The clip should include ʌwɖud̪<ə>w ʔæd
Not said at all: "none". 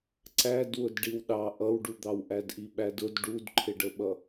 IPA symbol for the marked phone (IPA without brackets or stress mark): ɑ